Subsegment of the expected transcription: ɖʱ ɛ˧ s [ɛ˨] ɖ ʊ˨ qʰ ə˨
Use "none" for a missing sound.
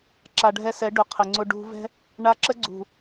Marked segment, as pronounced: ɛ˨˦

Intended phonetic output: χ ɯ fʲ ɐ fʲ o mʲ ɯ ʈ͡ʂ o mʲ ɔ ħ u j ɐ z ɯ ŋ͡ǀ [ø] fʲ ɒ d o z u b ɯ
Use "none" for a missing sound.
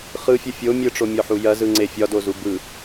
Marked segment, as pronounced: e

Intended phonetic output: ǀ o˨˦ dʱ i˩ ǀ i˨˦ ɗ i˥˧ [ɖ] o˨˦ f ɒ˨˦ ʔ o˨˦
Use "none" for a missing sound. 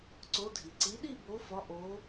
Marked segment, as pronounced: b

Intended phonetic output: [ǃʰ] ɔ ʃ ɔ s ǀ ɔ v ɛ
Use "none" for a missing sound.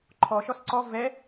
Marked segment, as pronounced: ǃʰ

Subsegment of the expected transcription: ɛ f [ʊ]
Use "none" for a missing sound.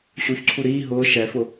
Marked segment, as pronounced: ʊ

